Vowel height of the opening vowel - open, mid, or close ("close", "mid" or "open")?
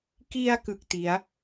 close